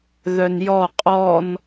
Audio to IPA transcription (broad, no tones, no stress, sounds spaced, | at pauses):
ð œ n j ɔ qʼ ɔ n